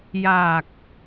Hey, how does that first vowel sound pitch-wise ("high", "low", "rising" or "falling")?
low